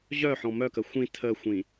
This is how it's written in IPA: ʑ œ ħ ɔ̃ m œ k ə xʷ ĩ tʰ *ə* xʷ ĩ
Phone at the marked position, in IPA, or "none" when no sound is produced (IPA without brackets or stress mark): ə